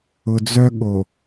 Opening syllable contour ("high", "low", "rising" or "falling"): low